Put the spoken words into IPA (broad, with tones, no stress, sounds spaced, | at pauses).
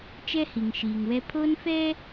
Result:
t͡ʃ ɛ˦ h i˨ ŋ ʃ iː˨ ŋ w ɛ˦ pʰ o˦ n f ɛ˦